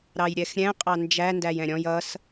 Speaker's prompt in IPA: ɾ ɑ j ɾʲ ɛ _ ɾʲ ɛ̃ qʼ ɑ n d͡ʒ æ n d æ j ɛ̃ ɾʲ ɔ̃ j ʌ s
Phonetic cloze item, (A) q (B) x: B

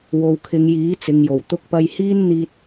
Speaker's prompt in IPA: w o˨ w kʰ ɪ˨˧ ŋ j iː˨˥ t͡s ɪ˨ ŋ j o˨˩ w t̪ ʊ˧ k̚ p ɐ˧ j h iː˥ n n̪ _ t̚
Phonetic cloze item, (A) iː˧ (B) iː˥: A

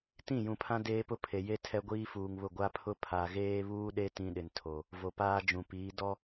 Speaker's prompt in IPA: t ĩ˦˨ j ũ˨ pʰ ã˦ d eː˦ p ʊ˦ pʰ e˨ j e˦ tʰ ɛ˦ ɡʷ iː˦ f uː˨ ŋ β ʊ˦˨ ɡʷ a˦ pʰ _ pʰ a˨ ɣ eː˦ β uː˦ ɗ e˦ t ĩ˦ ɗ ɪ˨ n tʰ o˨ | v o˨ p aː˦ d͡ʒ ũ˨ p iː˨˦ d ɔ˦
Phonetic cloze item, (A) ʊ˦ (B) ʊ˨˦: A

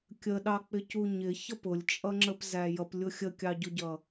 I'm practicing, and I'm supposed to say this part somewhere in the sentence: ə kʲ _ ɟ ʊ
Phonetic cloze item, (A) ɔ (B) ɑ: B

